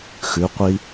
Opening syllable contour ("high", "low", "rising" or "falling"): rising